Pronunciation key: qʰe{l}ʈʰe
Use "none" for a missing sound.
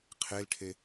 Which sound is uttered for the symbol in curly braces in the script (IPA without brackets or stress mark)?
l